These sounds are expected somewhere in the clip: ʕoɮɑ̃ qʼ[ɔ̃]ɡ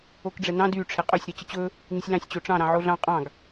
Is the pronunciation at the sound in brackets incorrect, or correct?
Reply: incorrect